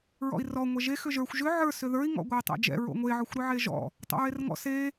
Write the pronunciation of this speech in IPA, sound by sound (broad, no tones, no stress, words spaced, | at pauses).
ɹɔ̰i̯rɔ ŋʷɛʒe xʏʒə˞xʷ ʒʏ ʕə˞ sʏðə˞i̯ ŋɔ̰ɡʷə˞i̯tˤɛ̰d͡ʒɛ̰ ɹo̰ŋʷe ʕɔxʷɾʏʕeʒɔ̰ | tˤo̰ɹerŋɔ̰ se